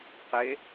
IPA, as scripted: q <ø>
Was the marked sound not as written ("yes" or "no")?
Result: yes